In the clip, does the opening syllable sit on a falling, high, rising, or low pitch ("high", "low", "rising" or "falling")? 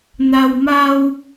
low